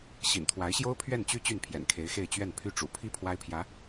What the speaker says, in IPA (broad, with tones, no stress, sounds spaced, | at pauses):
ɕ ḭ˨˩ n t̪ʰ w a˧˥ ɪ̯ ɕ j o˥ ʊ̯ pʰ ɥ ɛ˥˩ n t͡ɕ y˥ t͡ɕ y˥˩ n pʰ j ɛ̰˨˩ n kʰ e˧˥ ɪ̯ x e˥˧ ɪ̯ t͡ɕ ɥ ɛ˥˩ n pʰ y˥ ʈ͡ʂ ṵ˨˩ pʰ i˥ pʰ w a˥ ɪ̯ pʰ j ä˧˥